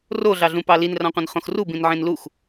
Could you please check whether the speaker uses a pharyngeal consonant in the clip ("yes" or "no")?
yes